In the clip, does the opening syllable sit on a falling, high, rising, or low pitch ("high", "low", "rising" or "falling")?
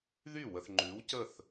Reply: falling